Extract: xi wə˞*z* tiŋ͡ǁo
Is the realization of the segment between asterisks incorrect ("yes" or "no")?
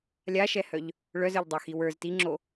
no